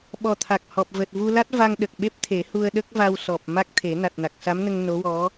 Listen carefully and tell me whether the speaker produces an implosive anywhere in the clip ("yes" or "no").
yes